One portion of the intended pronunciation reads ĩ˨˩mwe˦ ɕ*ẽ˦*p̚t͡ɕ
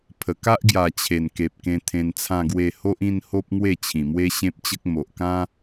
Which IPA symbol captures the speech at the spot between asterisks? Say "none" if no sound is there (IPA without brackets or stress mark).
ẽ˦